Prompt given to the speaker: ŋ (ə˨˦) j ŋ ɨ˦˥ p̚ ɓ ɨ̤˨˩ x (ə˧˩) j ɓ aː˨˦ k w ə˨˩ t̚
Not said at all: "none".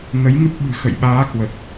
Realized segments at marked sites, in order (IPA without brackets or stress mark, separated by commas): ə˨˦, ə̰˧˨